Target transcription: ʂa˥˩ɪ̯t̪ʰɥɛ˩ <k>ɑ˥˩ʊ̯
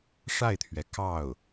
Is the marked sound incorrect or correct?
correct